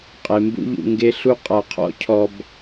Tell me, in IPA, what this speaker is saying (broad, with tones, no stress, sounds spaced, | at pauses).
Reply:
qʼ e˨ m b ṵ˦ ʎ ṵ˧ ŋ ɡ e˦ ɬ u˦ qʼ a˧ qʰ ɔ̰˦ cʰ ɔ˧ b